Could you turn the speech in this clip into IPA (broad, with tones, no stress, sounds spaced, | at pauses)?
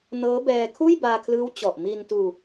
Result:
n ɤː˦˥ b ɛː˧ kʰ uː˥˩ j b aː˧ kʰ l ɯː˦˥ w t͡ɕ ɔ˨˩ ʔ m i˧ n t uː˧